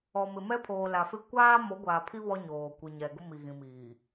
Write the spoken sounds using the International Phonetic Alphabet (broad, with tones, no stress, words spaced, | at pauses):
ɔ˨mɪ˨ mɛ˦pʰoː˨la˨fɪ˦ kʷaː˦ mo˨˦ɡʷaː˨pʰi˦ βɔ˦ɲoː˨ kʷi˨ɲɛ˨ɡʊ˦ mi˨ɣĩ˨miː˨